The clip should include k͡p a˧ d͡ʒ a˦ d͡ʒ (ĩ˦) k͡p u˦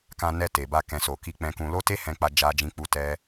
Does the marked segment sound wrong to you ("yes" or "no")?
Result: no